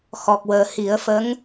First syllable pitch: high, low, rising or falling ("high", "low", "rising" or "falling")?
low